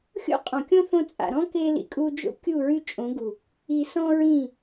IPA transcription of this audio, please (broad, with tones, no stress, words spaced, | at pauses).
xʲo̰˦qʼɔ̃˨kʲõ˦ θõ˧t͡sʼa̰˨ɾɔ̃˦ ke˧lḭ˨kʼu˧d͡ʒo̰˦ kʲu˦˨ɹy˦˨t͡ʃʼõ˨˦ɡu˨ | i˨ sɔ̃˦ɹĩ˦˨